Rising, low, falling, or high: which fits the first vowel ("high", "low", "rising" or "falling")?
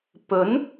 rising